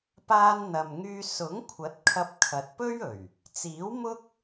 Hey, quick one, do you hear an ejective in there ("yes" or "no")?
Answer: no